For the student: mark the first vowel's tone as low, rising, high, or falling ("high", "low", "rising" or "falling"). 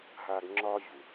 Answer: high